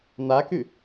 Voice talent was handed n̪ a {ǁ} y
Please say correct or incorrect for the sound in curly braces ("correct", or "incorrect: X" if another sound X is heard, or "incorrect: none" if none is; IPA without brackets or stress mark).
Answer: incorrect: k